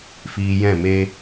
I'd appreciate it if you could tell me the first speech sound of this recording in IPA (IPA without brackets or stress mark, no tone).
f